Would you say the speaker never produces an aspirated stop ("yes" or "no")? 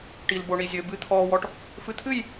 no